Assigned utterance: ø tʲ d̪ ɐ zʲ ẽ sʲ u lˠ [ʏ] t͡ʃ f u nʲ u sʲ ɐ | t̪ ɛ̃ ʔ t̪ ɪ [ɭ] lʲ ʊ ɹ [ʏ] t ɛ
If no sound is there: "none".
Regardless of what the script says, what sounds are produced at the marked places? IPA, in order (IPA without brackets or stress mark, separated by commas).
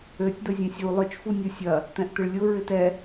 ʏ, ɭ, ɪ